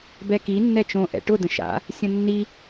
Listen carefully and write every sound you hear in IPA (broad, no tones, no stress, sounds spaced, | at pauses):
b ɛ k i nː ɛ t͡ʃ õ ʔ ɛ̰ ʈ ʊ d ə̃ ʃ a̰ | sʲ ə̃ nː i